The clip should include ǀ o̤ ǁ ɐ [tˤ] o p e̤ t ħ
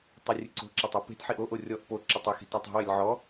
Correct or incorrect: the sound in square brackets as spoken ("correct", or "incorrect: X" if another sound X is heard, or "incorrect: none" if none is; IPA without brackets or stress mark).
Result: correct